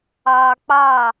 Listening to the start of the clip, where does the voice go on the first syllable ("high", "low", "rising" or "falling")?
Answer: high